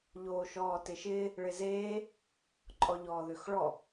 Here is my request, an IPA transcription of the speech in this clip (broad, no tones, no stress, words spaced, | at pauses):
ʎoːʃɔːtɪʃɪː | ɭɪzeː | ǃʼɔʎɔːðøxɭɔ